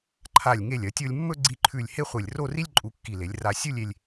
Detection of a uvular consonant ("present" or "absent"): present